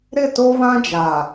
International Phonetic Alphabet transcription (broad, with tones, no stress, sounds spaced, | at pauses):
ɾ ɪ˦˨ t o˦ β ã˦ d͡ʒ a˨